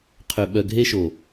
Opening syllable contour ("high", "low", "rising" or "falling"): low